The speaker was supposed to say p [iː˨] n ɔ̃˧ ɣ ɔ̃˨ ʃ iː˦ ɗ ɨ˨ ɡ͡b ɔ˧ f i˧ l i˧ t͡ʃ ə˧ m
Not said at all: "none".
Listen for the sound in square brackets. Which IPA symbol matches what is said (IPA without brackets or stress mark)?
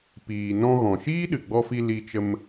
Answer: iː˨